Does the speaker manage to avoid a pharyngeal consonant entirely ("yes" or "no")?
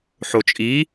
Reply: no